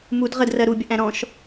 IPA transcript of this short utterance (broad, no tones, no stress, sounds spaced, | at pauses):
m u d ʁ ə d r ɜ ɾ u bʲ ʌ ʔ æ̃ ɾ ɔ̃ ʃ